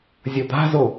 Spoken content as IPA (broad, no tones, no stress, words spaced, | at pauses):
zʲʌd̪a̤zo